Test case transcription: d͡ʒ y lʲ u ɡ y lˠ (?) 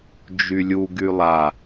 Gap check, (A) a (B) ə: A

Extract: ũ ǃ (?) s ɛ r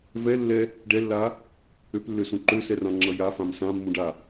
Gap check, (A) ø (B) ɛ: A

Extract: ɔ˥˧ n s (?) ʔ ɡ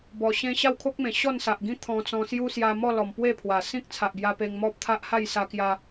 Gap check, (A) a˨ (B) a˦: A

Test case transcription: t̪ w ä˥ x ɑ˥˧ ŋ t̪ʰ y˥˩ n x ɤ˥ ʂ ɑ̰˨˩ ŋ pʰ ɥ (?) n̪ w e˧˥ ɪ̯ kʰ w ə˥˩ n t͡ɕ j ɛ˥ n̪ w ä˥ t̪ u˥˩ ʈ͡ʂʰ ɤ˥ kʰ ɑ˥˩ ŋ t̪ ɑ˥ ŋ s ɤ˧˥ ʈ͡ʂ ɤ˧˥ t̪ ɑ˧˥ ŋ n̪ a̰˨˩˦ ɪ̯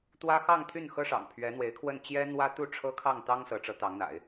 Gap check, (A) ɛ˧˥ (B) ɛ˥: A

